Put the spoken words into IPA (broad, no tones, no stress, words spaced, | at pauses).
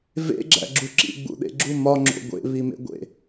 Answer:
vḛɡ͡ǁæ̰ɡ͡ǁu ǁḭɡ͡bṵɗḛɡ͡ǁu mɒŋ͡ǁo̰ ɡʷḛβimḛɡʷḛ